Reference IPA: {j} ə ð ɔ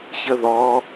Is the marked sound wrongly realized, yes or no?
yes